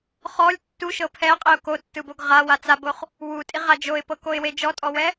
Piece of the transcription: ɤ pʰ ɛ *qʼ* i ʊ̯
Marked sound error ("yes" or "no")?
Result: no